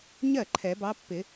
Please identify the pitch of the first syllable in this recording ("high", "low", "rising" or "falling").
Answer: falling